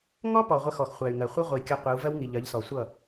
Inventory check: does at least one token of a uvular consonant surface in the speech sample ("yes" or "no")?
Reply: yes